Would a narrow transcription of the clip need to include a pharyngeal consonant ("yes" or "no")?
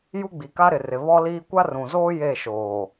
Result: no